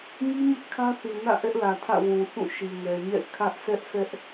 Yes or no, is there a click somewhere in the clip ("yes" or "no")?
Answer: no